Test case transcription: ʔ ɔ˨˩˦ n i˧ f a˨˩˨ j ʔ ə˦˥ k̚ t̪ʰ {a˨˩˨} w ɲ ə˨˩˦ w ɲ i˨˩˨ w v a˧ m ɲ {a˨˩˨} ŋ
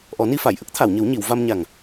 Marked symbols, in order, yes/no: yes, no

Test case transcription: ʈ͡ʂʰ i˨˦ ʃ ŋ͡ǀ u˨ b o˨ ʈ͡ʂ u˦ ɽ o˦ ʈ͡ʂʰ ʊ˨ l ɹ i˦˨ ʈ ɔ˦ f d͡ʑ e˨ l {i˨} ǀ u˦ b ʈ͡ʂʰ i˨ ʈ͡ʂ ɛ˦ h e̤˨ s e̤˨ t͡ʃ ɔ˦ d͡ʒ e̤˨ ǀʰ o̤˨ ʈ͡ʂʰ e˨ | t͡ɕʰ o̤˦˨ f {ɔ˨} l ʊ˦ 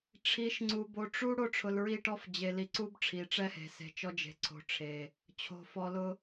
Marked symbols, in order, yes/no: yes, no

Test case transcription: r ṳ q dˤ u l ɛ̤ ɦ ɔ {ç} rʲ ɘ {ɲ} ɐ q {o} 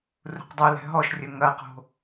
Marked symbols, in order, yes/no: no, no, no

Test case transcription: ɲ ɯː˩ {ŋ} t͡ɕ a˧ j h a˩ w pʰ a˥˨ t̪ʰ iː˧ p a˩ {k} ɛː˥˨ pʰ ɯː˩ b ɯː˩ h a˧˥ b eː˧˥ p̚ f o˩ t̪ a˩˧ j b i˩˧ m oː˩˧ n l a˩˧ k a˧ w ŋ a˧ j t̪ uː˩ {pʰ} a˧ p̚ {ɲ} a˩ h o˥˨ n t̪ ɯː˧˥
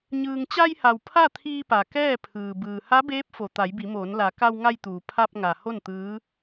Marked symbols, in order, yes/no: yes, yes, yes, no

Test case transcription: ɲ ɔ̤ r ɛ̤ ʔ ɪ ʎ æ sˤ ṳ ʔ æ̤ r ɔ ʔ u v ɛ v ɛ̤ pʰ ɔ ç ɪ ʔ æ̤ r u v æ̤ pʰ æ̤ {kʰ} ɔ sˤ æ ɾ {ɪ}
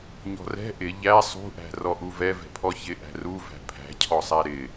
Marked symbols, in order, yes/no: no, yes

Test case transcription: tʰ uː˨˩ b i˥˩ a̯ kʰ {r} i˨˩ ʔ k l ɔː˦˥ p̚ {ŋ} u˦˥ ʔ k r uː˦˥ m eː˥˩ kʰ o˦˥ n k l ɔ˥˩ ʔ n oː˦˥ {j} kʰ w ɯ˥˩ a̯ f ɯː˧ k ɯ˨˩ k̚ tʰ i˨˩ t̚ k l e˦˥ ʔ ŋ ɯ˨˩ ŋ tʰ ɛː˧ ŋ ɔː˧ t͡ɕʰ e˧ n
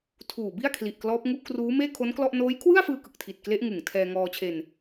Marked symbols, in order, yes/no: no, yes, yes

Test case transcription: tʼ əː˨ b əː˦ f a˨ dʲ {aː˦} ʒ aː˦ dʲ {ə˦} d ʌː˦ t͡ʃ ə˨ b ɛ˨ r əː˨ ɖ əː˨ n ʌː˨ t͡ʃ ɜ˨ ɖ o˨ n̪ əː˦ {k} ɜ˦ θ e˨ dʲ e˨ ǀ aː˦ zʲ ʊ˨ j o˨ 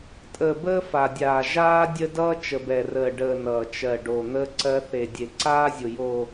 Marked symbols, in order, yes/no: no, yes, no

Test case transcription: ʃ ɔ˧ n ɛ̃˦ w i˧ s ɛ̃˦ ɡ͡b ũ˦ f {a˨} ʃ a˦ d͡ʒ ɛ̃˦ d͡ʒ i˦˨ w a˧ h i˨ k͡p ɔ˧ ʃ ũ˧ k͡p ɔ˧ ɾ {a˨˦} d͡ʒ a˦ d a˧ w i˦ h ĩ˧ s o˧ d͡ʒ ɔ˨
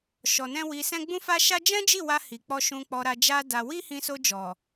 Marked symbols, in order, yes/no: no, no

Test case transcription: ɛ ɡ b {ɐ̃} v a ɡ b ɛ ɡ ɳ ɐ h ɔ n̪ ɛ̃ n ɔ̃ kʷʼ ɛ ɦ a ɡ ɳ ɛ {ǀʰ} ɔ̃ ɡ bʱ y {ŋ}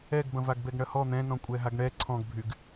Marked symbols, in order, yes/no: yes, yes, no

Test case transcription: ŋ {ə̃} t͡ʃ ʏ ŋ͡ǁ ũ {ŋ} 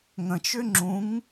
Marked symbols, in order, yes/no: yes, yes

